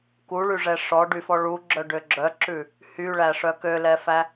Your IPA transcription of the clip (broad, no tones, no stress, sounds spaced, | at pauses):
k u ɭ y ʐ ɛ ʂ ɔ ɖ y f ɔ ɭ u ɡ͡ǁ œ ɖ ø ɡ͡ǁ œ ǁ ʉ | h y ɭ æ ʂ œ k ø l ɛ f æ